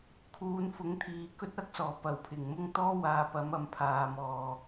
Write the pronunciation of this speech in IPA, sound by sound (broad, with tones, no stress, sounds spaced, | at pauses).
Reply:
kʰ uː˨ n f ʊ˨˥ ŋ t̪ʰ iː˨ k ɵ˥ t̚ ɐ˨˥ k̚ s ɔː˨˩ p ɐ˨˩ w pʰ ɪ˨˩ ŋ m ʊ˥ ŋ t̪ ɔː˥ w aː˨ p ɐ˨˥ m ɐ˨˧ m pʰ aː˧ m ɔː˧